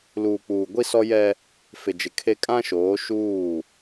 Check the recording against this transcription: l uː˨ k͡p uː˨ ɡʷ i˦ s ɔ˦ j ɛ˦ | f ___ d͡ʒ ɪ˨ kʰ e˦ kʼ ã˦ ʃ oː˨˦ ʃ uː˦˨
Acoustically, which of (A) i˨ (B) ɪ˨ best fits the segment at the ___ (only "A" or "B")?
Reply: B